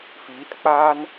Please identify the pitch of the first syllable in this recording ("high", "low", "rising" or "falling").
rising